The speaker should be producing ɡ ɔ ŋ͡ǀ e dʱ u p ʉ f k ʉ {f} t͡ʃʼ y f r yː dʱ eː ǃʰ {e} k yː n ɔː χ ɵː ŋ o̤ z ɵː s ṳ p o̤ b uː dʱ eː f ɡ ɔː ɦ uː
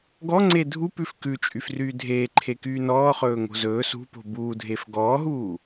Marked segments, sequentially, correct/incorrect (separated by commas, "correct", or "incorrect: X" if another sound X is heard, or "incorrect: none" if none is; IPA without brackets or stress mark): incorrect: none, correct